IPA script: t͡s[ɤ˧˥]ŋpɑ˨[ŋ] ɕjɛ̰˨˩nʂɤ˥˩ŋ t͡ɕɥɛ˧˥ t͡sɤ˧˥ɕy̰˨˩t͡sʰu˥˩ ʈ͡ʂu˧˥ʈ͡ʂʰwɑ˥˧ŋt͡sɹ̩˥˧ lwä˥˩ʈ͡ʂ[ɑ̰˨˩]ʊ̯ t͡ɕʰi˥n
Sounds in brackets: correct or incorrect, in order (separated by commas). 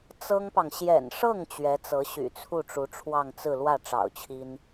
incorrect, correct, correct